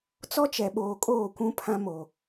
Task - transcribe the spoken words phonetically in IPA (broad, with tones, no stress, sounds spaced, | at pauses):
t͡s ɔ˦ t͡ʃ ɛ˨ ɓ oː˨ kʼ oː˦˨ kʷ ũ˦ pʰ ã˦ m o˨